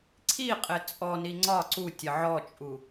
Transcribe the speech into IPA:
ǀʰ i qʼ ɪ t͡sʼ ɔ n i ŋ͡ǀ ɒ ǀ u tʲ ə ʕ ɔ t͡ʃʼ u

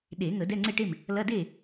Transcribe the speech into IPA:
ɗ e˨˩˦ ŋ ə˨˩˦ d ɛ˧˥˧ ŋ͡ǀ e˥˩ ʈ e˥˩ m | l ɐ˧˥˧ d e˥˩

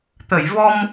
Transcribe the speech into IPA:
t̪ ə˨˩˨ j v ɔ˧ m

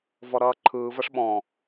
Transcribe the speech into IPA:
v ɔ ɾ ʌː ǃʰ ɯː v ʌ ʂ ɓ ɔ̃

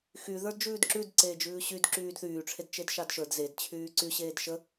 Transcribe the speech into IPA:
x y ð ə˞ d d͡ʒ ʉː d ǁ ʉ d ǀ eː d͡ʒ ʉː ɕ y d ǁ yː d θ yː ʈ͡ʂʰ e d t͡ʃ e d ʃ ɑ d ʃ ə˞ d z e d t͡ɕʰ yː ǀ y ɕ eː d ʃ ə

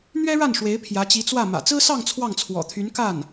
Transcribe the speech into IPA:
n̪ ɥ ɛ˥ ɻ a˥˩ n ʂ w e˧˥ ɪ̯ pʰ j ä˧˥ t͡ɕ i˧˥ t͡s w ä˥˩ m ä̰˨˩ t͡s ɹ̩˥ s ɑ˥˧ ŋ t͡sʰ w ɑ˥˩ ŋ t͡sʰ w ɔ̰˨˩ t̪ʰ y˧˥ n k a˥˩ n

